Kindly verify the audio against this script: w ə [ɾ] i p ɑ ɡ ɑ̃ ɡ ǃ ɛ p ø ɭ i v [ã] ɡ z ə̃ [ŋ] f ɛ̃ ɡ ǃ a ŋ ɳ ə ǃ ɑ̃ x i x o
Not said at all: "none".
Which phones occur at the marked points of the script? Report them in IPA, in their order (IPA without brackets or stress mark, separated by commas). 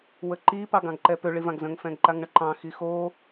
ǃ, ã, ŋ